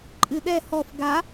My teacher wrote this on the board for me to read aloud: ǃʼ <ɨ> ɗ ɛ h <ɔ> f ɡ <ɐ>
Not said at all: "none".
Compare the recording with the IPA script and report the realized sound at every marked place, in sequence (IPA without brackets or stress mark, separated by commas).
ɨ, ɔ, a